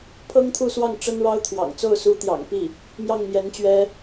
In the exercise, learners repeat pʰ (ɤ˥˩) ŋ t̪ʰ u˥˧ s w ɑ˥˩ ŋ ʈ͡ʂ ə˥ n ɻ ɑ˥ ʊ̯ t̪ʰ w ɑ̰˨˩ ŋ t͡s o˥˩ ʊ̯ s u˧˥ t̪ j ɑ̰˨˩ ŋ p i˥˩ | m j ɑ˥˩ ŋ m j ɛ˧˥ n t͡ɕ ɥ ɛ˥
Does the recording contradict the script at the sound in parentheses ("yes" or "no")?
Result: yes